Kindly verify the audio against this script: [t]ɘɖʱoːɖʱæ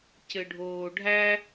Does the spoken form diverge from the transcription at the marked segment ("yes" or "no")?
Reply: yes